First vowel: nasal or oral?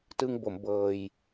oral